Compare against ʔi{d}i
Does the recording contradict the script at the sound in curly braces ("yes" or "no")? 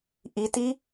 yes